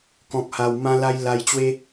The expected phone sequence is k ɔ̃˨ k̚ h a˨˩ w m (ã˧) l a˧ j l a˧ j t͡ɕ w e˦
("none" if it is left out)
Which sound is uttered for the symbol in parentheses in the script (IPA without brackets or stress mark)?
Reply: ã˧